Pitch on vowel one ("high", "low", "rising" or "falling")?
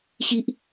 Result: high